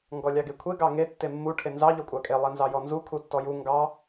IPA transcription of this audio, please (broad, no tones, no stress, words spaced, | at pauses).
ŋɡɔlʲɑɡekʷʰe ɡɑŋe tːemːu ʈʰenzɑ ʎɔkʷʼɑkʼe lˠenzɑjɔnzu kʰutːɔju ŋɡɑ